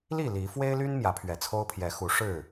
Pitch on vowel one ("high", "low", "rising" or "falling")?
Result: falling